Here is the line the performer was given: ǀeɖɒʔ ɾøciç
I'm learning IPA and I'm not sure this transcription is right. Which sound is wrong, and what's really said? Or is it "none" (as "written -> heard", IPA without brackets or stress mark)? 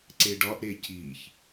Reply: ø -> e